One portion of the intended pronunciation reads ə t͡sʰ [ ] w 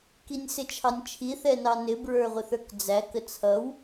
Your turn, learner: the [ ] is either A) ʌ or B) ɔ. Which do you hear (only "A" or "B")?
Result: A